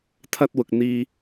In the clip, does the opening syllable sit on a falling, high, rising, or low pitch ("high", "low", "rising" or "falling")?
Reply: high